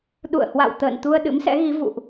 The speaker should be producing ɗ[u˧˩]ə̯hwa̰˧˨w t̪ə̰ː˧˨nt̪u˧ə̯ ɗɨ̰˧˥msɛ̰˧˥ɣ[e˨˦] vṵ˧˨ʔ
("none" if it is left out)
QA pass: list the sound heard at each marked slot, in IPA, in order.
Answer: ṵ˧˨, i˨˦

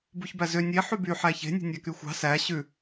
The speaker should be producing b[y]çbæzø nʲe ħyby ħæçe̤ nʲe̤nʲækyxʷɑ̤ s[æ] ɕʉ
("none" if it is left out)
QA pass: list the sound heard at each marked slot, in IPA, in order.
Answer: u, æ

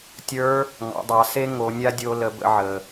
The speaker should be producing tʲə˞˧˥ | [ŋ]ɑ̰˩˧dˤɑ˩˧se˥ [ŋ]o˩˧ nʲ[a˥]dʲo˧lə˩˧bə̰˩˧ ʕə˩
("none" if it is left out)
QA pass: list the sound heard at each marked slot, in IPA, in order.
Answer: ŋ, ŋ, a˥

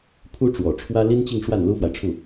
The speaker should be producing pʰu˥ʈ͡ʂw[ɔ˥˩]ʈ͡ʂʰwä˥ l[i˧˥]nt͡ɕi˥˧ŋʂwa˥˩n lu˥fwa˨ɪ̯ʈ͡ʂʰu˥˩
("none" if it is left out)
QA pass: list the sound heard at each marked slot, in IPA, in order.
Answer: ɔ˨˩, i˥

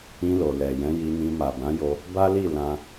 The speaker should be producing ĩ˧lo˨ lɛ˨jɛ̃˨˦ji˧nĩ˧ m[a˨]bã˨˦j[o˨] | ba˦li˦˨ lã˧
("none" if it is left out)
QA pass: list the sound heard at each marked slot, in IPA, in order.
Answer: a˨, o˧

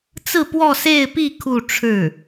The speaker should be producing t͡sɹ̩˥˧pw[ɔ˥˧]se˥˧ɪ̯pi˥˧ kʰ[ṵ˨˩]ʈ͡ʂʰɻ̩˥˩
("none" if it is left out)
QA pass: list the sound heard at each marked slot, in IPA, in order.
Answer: ɔ˥˧, u˥˧

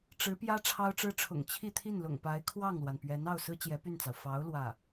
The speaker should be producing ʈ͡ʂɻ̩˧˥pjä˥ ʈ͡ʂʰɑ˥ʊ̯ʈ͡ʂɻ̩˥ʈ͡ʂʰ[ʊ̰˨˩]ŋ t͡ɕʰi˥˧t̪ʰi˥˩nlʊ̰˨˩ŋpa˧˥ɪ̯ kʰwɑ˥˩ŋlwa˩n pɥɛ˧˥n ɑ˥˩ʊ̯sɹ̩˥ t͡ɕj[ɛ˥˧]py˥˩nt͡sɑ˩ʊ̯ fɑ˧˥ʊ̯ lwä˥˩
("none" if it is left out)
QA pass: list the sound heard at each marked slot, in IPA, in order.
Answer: ʊ̰˨˩, ɛ˧˥

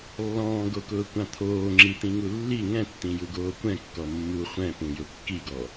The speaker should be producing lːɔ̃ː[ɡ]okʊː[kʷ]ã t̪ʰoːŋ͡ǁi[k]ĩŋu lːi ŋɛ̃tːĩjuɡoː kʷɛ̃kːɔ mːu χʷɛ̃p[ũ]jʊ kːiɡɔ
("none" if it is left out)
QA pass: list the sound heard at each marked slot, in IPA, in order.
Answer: ɡ, kʷ, t̪, ũ

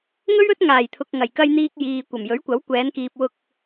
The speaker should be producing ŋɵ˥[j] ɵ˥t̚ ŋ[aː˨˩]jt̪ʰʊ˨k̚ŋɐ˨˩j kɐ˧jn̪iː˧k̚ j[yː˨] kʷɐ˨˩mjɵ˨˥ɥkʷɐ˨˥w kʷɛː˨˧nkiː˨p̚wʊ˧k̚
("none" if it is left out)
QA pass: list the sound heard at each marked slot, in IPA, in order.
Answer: ɥ, aː˨˩, iː˨

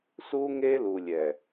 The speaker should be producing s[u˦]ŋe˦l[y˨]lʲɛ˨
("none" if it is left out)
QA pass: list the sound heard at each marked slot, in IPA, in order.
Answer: u˦, u˨

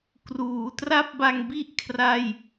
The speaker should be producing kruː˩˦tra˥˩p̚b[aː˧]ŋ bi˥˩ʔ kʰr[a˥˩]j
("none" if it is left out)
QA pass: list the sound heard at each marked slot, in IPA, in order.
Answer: a˧, a˥˩

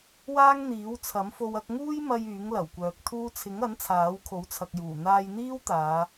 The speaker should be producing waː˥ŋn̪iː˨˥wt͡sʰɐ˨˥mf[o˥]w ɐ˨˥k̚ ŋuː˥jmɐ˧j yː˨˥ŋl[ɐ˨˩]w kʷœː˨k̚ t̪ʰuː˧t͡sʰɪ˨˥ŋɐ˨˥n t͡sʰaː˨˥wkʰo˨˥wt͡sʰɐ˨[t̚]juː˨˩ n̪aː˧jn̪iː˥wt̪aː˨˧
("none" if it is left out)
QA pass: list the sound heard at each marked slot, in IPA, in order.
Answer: o˧, ɐ˨˩, k̚

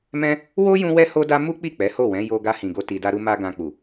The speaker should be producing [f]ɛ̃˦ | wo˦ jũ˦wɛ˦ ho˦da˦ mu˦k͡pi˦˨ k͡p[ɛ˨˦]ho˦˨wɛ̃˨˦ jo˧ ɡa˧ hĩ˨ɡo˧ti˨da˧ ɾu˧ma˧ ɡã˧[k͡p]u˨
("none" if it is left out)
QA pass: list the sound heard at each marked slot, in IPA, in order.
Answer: m, ɛ˨˦, k͡p

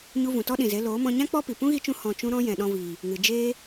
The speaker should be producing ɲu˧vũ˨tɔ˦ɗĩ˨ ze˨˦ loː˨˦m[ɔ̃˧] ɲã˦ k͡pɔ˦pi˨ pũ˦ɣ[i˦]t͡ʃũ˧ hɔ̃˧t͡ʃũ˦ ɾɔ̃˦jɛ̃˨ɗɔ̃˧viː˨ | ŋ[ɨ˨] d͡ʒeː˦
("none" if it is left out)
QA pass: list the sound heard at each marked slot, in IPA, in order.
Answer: ɔ̃˧, i˧, ɨ˨

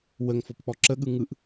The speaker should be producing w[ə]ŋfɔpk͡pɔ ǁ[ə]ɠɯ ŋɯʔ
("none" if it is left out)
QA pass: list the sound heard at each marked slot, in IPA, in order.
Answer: ə, ə

